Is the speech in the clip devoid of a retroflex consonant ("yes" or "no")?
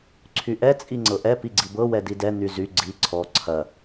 yes